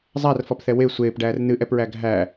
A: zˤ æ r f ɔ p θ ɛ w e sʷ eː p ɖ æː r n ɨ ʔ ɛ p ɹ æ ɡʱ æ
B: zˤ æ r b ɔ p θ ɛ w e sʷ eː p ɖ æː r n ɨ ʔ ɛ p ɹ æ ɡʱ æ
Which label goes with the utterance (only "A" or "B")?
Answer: A